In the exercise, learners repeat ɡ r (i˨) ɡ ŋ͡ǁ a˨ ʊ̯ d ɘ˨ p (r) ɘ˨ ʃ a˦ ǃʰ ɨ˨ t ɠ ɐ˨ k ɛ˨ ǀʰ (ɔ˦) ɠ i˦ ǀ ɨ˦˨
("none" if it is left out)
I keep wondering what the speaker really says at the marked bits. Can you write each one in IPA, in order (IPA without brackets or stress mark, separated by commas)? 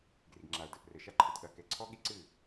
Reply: i˨, r, ɔ˦